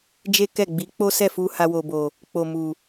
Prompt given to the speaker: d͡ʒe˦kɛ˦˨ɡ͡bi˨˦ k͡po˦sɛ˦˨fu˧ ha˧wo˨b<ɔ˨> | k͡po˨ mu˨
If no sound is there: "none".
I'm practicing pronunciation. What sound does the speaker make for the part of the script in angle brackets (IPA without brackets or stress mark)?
o˨